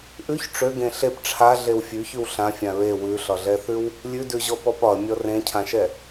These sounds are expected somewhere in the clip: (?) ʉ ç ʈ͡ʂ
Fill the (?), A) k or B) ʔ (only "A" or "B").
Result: B